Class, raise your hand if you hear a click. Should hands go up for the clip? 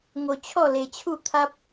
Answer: no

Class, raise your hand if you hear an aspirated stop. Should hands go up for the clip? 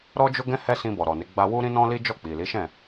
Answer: no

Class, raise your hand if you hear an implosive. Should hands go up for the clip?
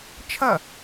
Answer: no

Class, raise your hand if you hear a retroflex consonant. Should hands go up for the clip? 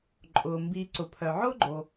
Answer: no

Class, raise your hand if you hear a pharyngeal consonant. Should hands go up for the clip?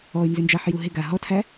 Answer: yes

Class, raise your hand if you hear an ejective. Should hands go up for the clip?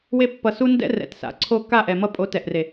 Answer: yes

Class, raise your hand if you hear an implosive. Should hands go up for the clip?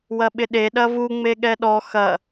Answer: yes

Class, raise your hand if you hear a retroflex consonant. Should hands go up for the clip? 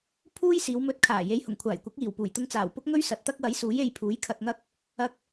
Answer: no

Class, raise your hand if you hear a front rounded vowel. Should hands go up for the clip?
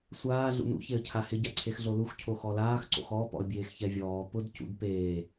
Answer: no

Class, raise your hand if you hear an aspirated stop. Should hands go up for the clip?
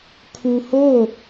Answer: yes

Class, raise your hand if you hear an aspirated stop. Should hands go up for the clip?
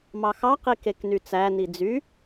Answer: no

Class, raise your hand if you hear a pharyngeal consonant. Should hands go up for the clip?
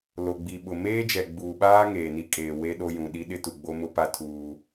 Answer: no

